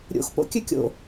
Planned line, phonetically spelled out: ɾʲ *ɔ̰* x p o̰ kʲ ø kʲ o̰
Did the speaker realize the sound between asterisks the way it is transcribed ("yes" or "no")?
no